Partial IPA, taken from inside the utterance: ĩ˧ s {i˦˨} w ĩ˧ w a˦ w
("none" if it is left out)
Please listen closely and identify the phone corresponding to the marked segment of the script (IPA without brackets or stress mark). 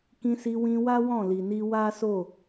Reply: i˧